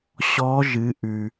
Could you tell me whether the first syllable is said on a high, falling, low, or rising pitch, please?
rising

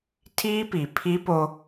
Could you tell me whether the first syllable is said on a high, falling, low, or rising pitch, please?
high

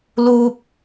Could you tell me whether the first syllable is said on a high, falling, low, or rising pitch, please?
high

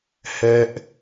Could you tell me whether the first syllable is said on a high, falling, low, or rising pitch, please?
low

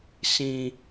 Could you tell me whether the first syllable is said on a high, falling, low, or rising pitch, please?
high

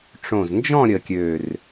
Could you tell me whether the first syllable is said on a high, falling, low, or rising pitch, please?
low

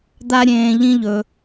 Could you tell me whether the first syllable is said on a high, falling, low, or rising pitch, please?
high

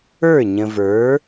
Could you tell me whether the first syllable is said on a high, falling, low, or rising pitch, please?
falling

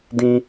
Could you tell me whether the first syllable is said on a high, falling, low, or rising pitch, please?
high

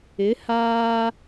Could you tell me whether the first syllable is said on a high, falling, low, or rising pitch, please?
rising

